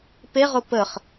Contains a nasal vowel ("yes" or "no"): no